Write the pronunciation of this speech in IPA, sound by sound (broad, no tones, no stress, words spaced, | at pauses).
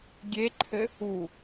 ɡʲeǃʰɘ | u